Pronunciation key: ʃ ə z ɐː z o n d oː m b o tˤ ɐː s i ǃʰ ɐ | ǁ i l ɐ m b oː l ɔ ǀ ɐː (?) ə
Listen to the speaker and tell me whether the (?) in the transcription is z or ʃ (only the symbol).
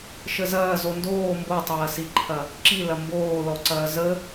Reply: z